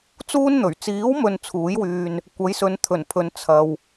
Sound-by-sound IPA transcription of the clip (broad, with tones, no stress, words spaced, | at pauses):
t͡suː˥nn̪ɵ˨˩ɥ t͡siː˨˥wmɵ˨n t͡sʰuː˨˥jwyː˧n | kʷɐ˨˥jsɵ˨˧n t̪ʰɵ˨˩npʰɵ˨˧n t͡sʰɐ˨w